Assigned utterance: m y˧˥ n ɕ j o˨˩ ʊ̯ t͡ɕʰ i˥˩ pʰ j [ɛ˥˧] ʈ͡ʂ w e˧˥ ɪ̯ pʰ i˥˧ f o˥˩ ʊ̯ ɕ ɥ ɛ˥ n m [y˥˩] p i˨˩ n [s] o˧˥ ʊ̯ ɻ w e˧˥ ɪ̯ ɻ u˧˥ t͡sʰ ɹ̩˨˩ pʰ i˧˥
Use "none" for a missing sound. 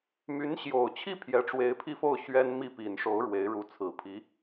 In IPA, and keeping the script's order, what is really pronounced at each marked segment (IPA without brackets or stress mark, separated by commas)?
ɛ˧˥, i˥˩, ʂ